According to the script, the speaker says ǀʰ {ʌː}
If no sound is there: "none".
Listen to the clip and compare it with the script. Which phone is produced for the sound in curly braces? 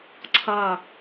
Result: ʌː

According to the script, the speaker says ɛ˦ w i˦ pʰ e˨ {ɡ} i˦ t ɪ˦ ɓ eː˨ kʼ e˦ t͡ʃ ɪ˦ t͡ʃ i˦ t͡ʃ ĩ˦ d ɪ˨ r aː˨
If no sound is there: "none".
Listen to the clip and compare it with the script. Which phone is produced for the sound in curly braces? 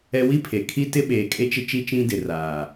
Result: kʰ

